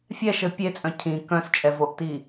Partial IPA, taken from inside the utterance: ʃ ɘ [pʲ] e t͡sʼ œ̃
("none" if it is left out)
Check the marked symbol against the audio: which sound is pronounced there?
pʲ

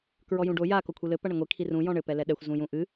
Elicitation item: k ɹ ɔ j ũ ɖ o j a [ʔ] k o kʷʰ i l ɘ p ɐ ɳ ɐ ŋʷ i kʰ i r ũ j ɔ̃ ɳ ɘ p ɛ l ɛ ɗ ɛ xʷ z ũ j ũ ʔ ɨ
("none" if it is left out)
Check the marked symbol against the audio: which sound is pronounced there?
none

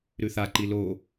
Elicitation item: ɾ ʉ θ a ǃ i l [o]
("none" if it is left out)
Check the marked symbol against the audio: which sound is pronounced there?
o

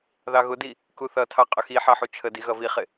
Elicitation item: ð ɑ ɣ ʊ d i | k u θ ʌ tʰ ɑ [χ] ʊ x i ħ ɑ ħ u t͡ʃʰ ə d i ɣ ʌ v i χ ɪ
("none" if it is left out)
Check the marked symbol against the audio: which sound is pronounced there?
qʼ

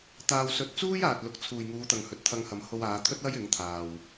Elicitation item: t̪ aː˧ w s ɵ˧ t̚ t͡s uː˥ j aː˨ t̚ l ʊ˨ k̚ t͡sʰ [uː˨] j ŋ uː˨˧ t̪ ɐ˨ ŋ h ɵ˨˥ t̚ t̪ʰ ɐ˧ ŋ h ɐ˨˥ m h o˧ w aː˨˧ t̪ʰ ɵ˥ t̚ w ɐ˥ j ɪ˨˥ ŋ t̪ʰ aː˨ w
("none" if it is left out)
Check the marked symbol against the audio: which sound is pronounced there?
uː˨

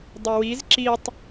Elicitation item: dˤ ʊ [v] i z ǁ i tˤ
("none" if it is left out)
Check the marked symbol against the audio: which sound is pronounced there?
w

